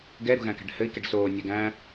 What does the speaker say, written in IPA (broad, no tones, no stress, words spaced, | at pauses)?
ɡɛɾṳɣæ̃kæ̤ɖ hɘi̯kɛɖ soː nʲɛɡæ̃